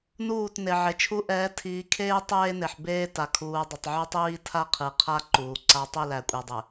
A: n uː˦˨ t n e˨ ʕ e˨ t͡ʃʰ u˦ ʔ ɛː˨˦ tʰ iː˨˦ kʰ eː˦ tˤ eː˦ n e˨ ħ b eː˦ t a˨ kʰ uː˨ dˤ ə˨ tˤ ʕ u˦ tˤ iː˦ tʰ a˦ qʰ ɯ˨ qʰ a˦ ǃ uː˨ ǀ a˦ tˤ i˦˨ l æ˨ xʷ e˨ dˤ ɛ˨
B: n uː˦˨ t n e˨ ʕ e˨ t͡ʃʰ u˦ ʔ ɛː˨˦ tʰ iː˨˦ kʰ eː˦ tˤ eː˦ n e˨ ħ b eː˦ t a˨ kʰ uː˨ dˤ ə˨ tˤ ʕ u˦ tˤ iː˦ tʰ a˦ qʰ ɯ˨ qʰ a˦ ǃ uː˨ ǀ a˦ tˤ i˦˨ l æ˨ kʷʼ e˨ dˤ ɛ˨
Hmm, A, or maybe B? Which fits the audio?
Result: B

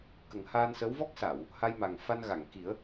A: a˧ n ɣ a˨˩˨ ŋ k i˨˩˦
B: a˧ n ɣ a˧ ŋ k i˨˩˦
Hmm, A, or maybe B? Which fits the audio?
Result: A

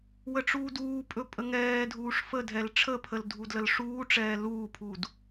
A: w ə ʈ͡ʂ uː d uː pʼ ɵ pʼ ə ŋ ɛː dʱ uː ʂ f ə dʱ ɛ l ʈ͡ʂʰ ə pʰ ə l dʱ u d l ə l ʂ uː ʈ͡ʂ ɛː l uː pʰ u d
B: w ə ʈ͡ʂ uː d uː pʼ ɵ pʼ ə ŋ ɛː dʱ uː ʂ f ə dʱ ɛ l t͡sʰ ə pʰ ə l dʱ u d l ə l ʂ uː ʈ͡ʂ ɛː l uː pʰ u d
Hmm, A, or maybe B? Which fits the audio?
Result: A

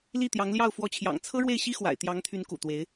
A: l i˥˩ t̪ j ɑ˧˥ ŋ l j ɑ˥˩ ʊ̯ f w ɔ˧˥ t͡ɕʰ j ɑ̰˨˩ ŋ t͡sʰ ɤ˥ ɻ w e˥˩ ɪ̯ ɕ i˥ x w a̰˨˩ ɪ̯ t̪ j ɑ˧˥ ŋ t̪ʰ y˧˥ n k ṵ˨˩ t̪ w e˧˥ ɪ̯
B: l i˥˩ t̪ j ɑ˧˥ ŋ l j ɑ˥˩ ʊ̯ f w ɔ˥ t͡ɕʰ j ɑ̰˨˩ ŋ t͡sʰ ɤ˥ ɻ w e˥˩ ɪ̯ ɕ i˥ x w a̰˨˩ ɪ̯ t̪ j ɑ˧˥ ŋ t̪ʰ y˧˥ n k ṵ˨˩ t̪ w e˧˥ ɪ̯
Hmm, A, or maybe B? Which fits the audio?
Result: A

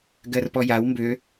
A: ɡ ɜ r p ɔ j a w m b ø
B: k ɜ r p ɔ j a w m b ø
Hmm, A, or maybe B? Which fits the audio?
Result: A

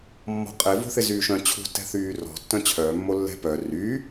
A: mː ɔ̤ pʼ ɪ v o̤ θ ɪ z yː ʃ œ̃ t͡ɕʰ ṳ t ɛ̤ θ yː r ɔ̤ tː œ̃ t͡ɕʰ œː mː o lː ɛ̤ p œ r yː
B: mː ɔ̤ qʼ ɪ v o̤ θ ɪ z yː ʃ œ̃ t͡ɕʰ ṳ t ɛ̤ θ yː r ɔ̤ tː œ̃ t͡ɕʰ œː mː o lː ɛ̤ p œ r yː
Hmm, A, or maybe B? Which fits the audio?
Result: B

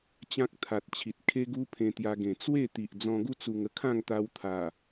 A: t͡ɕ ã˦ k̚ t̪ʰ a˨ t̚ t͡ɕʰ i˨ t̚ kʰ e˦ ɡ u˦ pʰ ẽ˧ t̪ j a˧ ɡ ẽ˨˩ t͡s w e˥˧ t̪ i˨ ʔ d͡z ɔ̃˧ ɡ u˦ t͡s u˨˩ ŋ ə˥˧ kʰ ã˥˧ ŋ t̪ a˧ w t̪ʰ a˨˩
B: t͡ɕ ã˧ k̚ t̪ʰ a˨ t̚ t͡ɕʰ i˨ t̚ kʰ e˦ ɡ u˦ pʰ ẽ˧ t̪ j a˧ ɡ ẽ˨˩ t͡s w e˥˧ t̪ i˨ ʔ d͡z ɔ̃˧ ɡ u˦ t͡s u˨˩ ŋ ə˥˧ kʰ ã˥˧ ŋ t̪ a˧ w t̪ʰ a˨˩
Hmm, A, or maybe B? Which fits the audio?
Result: A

